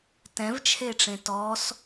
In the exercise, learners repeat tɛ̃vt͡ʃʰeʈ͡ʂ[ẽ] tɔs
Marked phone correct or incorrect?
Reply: correct